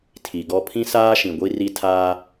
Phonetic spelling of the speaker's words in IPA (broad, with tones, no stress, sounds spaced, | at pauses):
tʰ i˨ ɡ ɔ˦ pʰ ĩ˦ s aː˦ ʃ ĩ˨ ɡʷ i˦ r i˦ tʰ aː˦